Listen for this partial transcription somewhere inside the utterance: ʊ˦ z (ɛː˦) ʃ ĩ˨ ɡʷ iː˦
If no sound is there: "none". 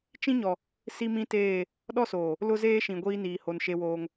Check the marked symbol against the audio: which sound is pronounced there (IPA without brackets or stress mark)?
eː˦